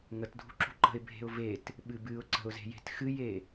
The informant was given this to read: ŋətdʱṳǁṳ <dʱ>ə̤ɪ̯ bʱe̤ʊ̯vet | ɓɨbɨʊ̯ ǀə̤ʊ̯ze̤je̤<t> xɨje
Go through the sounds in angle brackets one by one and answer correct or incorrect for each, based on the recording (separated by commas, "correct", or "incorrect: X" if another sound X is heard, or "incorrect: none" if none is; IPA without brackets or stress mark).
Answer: incorrect: ǃ, correct